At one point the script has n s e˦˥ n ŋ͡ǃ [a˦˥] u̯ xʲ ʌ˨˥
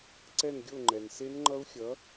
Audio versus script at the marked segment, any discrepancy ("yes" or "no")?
yes